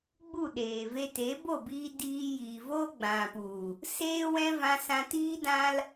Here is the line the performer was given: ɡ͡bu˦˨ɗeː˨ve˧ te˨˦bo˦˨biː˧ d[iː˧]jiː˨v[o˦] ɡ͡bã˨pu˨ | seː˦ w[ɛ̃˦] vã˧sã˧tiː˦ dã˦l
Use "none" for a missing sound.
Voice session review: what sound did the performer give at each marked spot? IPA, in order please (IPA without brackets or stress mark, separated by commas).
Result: iː˧, o˦, ɛ̃˦